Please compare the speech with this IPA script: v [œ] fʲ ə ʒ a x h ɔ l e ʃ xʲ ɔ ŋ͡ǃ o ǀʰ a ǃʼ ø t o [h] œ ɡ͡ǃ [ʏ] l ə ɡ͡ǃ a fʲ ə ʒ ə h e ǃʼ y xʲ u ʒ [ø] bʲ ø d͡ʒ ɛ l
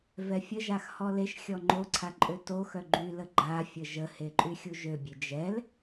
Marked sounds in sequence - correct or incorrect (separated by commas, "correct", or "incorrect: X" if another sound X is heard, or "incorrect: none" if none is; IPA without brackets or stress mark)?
incorrect: ɛ, incorrect: x, incorrect: y, correct